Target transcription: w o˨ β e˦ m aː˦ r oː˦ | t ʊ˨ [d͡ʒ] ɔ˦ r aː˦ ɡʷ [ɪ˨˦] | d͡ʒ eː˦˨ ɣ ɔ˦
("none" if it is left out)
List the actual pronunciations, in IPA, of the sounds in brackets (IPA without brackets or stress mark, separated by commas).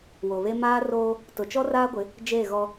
t͡ʃ, ɪ˨˦